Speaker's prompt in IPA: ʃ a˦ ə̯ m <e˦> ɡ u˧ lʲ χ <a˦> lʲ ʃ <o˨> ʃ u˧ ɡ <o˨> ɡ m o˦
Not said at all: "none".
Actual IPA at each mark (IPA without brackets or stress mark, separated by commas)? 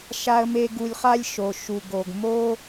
e˦, a˦, o˨, o˧